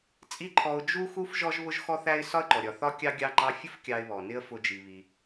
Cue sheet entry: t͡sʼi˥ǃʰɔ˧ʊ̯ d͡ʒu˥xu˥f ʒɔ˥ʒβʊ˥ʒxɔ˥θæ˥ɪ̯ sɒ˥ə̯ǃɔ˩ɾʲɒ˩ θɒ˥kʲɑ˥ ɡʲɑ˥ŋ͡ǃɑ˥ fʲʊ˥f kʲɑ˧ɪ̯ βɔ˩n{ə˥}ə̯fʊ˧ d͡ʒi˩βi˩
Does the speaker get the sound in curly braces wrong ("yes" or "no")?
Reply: yes